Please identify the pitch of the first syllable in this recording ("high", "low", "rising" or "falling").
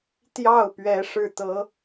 falling